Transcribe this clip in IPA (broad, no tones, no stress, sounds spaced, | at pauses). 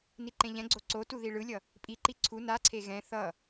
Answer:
n i ǃ ẽ ʎ ɛ̃ ɡ͡ǀ o ǀ o t u ð i ɭ ɯ lʲ ʌ | pʼ i ǃ i ǀʰ u n a ǀʰ e ɣ ɛ̃ θ ʌ